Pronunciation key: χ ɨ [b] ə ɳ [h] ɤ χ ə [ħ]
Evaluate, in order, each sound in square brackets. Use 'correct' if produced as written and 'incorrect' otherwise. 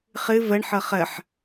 incorrect: v, incorrect: ħ, correct

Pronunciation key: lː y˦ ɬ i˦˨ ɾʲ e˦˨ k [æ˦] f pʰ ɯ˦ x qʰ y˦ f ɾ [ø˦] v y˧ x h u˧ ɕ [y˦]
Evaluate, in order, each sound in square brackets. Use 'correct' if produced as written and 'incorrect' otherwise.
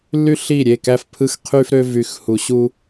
correct, correct, incorrect: u˦

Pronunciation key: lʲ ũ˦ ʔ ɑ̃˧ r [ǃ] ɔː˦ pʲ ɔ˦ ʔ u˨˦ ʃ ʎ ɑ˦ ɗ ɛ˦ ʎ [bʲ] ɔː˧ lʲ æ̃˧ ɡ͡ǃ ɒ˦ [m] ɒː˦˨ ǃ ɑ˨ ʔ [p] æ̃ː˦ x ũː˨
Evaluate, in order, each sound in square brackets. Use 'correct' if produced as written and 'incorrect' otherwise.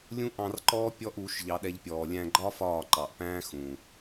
correct, incorrect: pʲ, incorrect: f, correct

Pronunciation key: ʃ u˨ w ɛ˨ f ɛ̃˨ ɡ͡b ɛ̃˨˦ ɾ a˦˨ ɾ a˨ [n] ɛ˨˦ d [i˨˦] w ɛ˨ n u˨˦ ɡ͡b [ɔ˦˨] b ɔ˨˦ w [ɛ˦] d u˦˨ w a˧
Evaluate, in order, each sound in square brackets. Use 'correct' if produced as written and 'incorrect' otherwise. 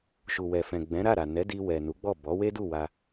correct, incorrect: i˧, correct, incorrect: e˦

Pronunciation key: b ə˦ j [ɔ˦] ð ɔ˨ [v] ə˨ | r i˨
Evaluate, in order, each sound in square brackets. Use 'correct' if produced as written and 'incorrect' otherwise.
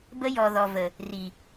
incorrect: ɔ˨, correct

